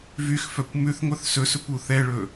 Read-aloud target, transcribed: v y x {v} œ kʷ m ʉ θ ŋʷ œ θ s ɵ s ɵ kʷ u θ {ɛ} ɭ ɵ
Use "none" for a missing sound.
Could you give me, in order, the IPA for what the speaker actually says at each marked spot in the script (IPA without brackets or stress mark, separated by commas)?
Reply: f, ɛ